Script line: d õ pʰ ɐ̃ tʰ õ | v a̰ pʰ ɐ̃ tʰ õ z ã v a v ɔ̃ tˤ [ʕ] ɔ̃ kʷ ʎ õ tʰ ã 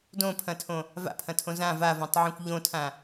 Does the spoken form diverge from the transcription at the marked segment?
no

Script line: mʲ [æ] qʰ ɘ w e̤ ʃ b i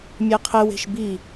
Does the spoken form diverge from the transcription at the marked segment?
yes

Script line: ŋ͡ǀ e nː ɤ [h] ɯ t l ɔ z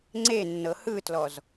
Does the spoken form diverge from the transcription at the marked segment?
no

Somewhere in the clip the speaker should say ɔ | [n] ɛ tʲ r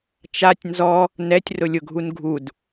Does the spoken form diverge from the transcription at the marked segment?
no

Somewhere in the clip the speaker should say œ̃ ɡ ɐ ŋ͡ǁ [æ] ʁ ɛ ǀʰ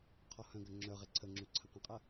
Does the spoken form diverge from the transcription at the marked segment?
yes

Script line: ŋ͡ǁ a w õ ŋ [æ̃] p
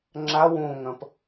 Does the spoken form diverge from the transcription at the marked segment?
yes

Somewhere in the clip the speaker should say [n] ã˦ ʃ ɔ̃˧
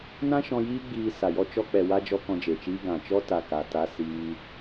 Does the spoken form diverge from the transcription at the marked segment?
no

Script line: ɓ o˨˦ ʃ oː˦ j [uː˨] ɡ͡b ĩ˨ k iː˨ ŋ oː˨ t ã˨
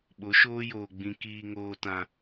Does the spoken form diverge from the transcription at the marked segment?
yes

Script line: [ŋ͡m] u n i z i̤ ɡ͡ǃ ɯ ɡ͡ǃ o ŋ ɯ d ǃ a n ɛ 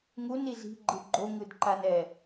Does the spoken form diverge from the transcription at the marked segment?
yes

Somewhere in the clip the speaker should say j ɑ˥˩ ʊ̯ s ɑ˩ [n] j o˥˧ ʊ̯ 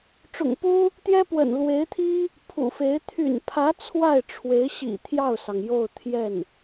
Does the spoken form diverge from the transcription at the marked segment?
yes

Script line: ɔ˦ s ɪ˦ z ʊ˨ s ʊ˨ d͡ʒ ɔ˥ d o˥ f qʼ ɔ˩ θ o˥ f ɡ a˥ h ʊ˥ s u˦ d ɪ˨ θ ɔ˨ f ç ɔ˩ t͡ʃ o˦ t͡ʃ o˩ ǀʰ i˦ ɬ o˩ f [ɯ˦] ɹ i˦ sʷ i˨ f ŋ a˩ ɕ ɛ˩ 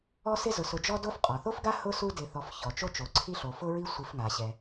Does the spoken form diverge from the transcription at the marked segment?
yes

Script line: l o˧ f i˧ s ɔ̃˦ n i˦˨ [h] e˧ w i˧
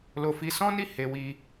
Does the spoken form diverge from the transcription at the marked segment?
no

